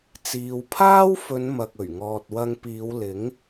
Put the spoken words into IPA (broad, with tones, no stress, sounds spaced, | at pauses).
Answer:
t͡s iː˨˧ w pʰ aː˥ w f ɵ˨˧ n m ɐ˨ k̚ ɵ˨˩ ɥ ŋ ɔː˨ t̚ w ɐ˧ ŋ p iː˨˧ w l ɪ˨˥ ŋ